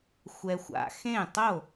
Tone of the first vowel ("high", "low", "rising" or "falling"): low